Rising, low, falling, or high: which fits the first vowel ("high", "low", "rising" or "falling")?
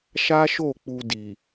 high